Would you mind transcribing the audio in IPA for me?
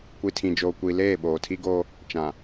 kʷi˨tʰĩ˨d͡ʒoː˨ kʷi˨leː˦˨ ɓoː˨tʰi˦ɡoː˦ | t͡ʃã˨

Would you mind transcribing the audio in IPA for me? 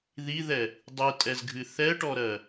ðiðɛ | dˤitʼɛzɡʱɨ θɛʈɔɾɜ

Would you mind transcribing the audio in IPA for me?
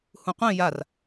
hũqʷĩ jar

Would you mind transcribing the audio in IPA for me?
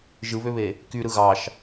ʒɯβøβe | kyɾɯ ɣɑʃ

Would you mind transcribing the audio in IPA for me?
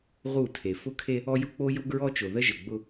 ʁu˦˨tʰe˨ fʊ˦kʰe˦ | ɔ˦jʊ˦k͡po˦jʊ˦ ɡɹɔ˦t͡ʃo˨ ðə˦ʒə˨ɡ͡bʊ˦

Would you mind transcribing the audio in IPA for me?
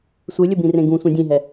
sʷɨlʲɘbĩrẽ ɡũsʷĩ dʲẽɦɛ

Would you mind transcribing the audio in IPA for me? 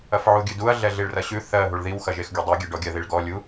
ɐfʕuɡʲʉduɐ̯ ɮɛɮiɭrɐɕʉ θɜ ɦuɭðiw xɐʒexɡʲudˤɜ ɡʲɛɖɔɡʲɐ ðiɭɡɔ lʲu

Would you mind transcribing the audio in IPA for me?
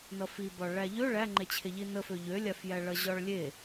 nʌfibɒ ɭæʎø ɭæŋ͡ǃet͡ɕʰe ʎinəfø ʎølʲafjæ ɭʌʑɒɭlʲe

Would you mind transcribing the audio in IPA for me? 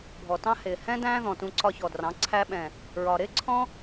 bʱɔ˨tɑ̃˦ hɪː˨hɛ̃˦ dæ̃ː˦ðɔ̃˨tũ˧ ǀɒ˧çɔ˨drɑ̃˨˦ ǀʰæ˧ɓɛ̃˨ | ɹɒ˨ɾɪː˦ ǀʰɔ̃˦

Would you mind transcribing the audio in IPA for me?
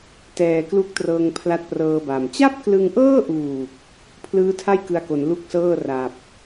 tɛː˨˩klu˦˥k̚trɤː˧ŋ pʰla˦˥t̚prɤː˧ba˨˩m t͡ɕa˥˩p̚klɯ˧ŋʔɤː˥˩ʔuː˨˩k̚ | pʰlɯː˦˥tʰa˥˩j kɯ˧a̯ko˩˦n lu˥˩k̚sɤː˥˩ ra˨˩p̚

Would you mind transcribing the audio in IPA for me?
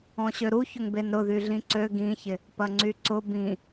ɔ̃ɕøɾuçʊŋ benɾʊðy ɮĩǀø ɡĩçɪ | pɐŋ͡ǀyǀʊ bĩ

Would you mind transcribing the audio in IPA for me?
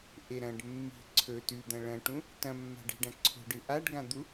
ʔeɾɐ̃ɖ mːi̤ ǀʰɵ tʉd̪ɐ̃ ɭɐ̃ʈũ | tɐ̃mːa̤ ɖe̤ɖɐ̃ǀʰo̤ɖɨ ʔaɖɡãd̪u

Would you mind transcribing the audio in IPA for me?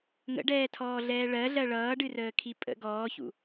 ŋə̰ɖɛːtʰɔːɮɛː ɭɜɮɜ ɭʌːɖɨrəːkʰi pʼə̰ ɡɔːçṵ

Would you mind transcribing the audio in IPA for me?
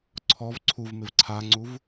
ǀʰɔv ǀʰuvmɪv ǀʰaŋ͡ǀuv

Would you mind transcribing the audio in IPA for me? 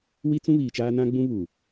wi˦t͡sũ˦ βiː˨t͡ʃaː˦ nã˦ ɡ͡bũ˦βuː˨

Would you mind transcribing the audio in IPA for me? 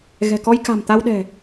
ɣɛ̤˨˩kɔ˧jka̤˨˩m t̪a˧wɗɛ̤˨˩

